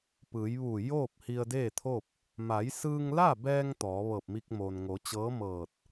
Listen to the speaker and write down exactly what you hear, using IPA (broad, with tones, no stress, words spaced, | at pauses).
pɯː˩˧jʋu˧˩ joː˥˨p̚ hi˧ə̯deː˥˨t̪ʰo˥˨p̚ | ma˩˧jsɯː˧ŋla˥˨bɛː˧ŋ t̪ɔː˩˧ ʋɤː˧˩p̚mi˧k̚moː˩n ŋo˩˧t͡ɕɤː˧˥mɤː˧˩t̚